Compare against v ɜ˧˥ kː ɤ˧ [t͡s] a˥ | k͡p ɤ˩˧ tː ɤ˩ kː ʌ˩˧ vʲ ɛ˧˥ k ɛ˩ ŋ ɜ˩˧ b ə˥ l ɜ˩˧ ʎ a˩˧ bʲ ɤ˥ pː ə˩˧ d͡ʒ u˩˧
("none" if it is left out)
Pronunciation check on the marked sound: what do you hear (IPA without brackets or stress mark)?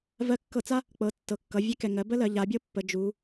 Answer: t͡s